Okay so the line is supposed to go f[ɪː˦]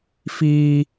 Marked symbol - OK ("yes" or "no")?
no